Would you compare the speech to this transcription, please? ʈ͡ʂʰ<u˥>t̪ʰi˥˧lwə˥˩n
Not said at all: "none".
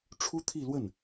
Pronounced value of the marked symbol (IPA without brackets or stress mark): u˥